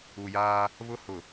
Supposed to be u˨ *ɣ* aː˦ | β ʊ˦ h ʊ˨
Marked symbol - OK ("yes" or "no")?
no